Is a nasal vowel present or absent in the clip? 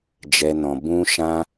present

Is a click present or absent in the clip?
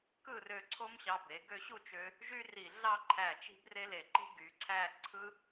present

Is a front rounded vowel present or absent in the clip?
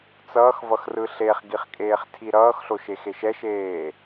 absent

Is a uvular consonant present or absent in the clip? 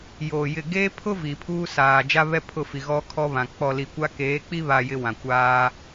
absent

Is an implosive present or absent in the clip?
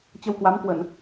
absent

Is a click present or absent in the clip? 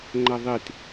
present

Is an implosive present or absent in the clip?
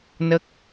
absent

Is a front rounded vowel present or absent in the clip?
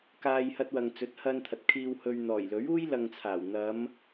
absent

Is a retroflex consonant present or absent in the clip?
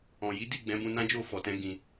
absent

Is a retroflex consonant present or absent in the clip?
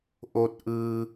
absent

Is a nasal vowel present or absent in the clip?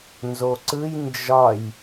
absent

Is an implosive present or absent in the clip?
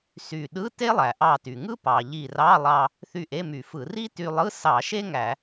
present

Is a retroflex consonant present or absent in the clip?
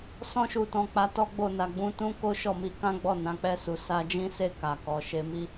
absent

